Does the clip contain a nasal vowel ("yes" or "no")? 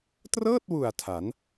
no